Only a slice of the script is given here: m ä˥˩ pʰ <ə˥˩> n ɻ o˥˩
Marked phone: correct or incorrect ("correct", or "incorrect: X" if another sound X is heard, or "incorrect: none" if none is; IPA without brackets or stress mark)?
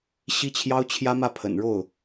incorrect: ə̰˨˩